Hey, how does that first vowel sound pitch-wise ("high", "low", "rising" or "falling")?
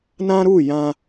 high